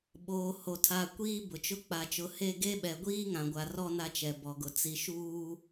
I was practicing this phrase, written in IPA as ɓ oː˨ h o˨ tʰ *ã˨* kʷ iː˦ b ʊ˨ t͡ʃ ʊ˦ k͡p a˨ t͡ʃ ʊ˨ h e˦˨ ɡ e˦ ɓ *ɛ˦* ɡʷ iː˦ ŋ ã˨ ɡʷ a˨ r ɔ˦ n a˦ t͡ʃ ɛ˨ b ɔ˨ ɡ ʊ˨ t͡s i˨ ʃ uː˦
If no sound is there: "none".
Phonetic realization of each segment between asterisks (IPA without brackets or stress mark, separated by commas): a˨, ɛ˨